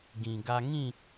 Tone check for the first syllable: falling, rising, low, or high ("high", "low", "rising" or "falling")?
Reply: low